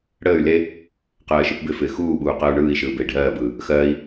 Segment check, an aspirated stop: absent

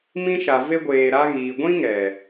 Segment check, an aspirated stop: absent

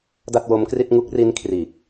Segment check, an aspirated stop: present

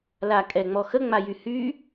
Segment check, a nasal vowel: absent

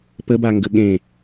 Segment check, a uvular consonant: absent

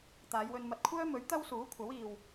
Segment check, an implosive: absent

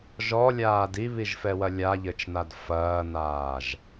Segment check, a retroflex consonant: absent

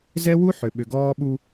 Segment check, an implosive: present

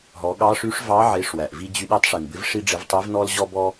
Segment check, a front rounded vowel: present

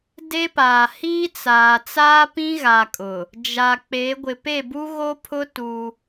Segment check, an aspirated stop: present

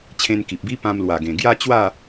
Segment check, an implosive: absent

